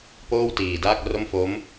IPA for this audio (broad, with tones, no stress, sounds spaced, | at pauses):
p oː˥˩ w t iː˨˩ d aː˥˩ k̚ r o˥˩ m f o˦˥ m